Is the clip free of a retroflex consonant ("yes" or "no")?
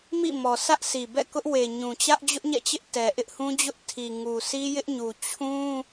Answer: yes